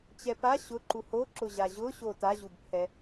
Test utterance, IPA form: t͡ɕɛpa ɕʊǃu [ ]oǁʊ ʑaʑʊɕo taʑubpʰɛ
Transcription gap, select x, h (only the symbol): h